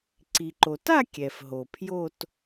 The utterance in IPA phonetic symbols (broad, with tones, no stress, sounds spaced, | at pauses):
ǀ i˩ ǃ o˩ t a˥˧ kʲ ɛ˩ f ɦ o˩ pʰ j o˥˧ t